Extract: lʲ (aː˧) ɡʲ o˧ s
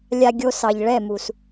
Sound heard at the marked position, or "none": a˧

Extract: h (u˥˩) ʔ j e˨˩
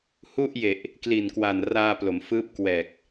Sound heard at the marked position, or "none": u˥˩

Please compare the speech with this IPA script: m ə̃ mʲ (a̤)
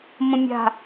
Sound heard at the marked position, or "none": a̤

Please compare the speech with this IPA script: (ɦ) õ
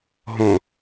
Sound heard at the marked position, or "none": ɦ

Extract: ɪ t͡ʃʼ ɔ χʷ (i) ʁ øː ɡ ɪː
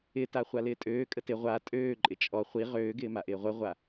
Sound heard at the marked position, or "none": i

